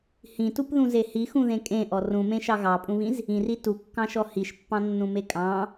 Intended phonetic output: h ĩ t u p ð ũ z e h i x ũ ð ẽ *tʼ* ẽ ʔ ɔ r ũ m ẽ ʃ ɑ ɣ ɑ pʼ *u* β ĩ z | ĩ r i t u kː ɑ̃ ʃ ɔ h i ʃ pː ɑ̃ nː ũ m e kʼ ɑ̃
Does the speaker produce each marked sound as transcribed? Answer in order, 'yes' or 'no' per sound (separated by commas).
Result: no, no